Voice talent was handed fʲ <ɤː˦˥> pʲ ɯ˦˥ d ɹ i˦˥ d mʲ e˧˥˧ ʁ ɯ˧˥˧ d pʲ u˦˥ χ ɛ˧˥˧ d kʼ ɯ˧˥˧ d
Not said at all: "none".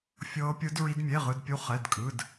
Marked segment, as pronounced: ɤː˦˥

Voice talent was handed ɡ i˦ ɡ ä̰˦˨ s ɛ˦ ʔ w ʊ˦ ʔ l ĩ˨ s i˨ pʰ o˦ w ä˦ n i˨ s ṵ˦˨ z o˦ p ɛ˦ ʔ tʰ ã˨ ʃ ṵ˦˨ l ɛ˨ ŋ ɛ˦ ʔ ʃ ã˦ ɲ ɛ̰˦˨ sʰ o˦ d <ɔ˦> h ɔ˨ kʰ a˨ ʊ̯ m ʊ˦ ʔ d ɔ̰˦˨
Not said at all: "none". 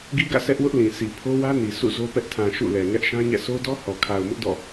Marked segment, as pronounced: ɔ˦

